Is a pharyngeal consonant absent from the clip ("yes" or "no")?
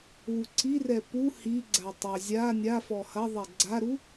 yes